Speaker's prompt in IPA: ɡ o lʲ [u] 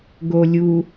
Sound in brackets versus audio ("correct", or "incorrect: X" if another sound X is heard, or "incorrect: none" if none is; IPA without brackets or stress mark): correct